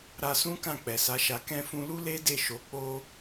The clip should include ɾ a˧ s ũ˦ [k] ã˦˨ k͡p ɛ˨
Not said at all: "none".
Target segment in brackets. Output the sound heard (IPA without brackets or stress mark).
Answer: k